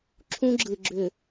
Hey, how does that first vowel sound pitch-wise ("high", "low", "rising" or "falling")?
high